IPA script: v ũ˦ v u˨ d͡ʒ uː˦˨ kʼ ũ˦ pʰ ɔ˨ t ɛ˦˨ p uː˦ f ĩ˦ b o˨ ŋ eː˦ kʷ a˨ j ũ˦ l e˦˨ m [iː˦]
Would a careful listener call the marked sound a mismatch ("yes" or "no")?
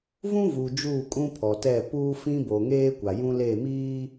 no